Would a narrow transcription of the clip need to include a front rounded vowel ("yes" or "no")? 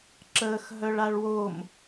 yes